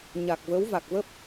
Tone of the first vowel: low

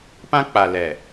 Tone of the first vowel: high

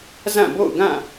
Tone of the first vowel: falling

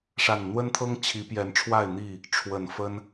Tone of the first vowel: low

